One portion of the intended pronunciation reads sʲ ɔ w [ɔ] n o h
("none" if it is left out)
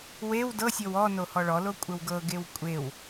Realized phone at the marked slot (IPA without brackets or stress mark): ɔ